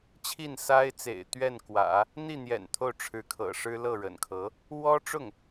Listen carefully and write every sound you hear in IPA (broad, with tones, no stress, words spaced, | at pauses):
t͡ɕʰi˥˩n sa˥ɪ̯t͡sḛ˨˩ɪ̯ t̪ɥɛ˥˩nkwä̰˨˩˦ | n̪i˥˩n̪jɛ̰˨˩n t̪ʰo˥˩ʊ̯ʈ͡ʂʰɻ̩˧˥kʰɤ̰˨˩ ʂɻ̩˥lɤ˥˩ɻə̰˨˩nkʰɤ˧˥ | wɔ˥ʈ͡ʂʊ˥˩ŋ